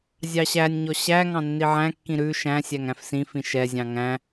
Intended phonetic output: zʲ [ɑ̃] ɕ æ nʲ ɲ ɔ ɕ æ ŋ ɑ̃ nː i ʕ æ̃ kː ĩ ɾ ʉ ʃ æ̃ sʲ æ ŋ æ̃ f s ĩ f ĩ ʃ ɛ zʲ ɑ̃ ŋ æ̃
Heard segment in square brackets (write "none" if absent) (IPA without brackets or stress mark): ɑ